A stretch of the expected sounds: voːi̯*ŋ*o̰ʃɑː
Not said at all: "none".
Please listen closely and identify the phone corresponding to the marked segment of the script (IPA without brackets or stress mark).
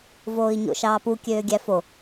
ɲ